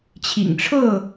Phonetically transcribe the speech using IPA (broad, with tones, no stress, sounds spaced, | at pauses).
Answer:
t͡ɕʰ ḭ˨˩ ŋ ʈ͡ʂʰ ɤ˥˨